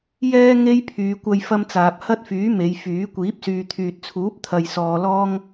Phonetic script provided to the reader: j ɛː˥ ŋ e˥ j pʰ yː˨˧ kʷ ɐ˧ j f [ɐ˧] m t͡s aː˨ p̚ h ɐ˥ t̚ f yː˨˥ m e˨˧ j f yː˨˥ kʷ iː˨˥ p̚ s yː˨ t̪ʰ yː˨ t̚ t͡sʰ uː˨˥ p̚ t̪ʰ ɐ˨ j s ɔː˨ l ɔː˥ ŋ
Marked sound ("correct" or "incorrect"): correct